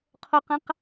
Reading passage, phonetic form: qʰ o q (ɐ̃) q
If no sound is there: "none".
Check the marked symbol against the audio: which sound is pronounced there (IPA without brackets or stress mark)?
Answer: ɐ̃